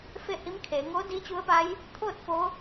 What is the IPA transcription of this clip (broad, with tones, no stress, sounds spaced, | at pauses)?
f e˥˨ h i˧˥ m kʰ eː˩˧ ŋ oː˧˥ d iː˧˥ t͡ɕ u˧˥ ə̯ p a˧˥ j | t̪ʰ oː˥˨ t̚ f o˧˥